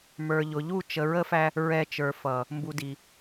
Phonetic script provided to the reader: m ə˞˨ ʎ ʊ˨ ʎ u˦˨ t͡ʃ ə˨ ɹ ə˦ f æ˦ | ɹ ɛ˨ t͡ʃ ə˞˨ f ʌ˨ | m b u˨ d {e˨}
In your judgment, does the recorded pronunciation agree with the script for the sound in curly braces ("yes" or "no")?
no